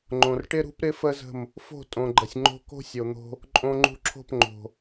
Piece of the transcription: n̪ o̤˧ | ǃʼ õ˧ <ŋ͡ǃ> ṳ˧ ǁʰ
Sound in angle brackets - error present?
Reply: no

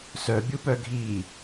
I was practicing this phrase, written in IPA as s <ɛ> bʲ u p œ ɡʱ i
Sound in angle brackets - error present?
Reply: yes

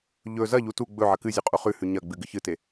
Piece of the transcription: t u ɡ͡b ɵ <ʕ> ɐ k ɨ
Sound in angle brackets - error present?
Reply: no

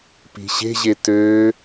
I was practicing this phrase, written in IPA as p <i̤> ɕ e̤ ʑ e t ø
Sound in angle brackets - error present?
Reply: no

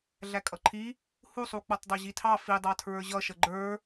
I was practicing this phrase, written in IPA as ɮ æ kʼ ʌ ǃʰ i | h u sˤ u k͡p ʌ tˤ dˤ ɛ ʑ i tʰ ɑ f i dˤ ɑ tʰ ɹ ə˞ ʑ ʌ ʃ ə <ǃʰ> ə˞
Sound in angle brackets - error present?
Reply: yes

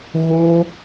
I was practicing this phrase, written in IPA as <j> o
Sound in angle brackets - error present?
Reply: yes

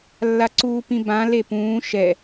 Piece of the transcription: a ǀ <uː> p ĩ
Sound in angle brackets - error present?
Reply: no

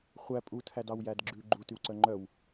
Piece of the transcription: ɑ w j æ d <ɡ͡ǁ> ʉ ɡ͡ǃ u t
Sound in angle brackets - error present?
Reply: no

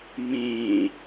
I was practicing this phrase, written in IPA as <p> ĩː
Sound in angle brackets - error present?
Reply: yes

